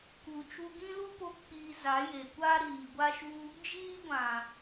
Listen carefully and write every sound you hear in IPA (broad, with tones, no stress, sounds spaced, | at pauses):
k u˨ t͡ʃ u˧ ɡ ĩ˦ l u˦ p o˦ k͡p iː˧ z a˨˦ j e˨ kʷ aː˦ ɾ iː˨ ɡʷ a˦ ʃ u˦ | d͡ʒ iː˦ ɡʷ ã˨